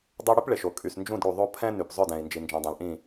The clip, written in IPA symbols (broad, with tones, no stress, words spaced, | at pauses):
dˤe˦ ɽy˦pɭe˨ʃo˨ kʼy˨snd͡ʒũ˦˨dɽu˨ðˤo˦ pʰɛ̃˦ny˨p zˤœ˦˨dɛ̃˨i̯ nd͡ʒi˨nd͡ʒɛ̃˨dˤɛ̃˨lʔĩ˦˨